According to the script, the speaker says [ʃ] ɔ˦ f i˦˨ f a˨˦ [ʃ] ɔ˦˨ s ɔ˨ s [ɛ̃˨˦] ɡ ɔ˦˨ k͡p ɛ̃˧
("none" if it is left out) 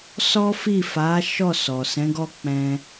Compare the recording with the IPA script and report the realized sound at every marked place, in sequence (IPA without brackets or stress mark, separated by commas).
s, ʃ, ɛ̃˨˦